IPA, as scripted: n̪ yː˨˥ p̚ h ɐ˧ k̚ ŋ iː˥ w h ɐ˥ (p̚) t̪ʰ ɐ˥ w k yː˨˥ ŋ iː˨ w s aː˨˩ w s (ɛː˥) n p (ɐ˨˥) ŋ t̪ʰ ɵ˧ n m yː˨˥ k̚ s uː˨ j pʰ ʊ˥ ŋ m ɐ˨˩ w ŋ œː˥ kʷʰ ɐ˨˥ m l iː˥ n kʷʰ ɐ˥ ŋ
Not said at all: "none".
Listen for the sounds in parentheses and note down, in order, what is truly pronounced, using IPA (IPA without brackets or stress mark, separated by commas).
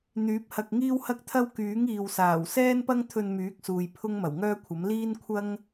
k̚, ɛː˥, ɐ˥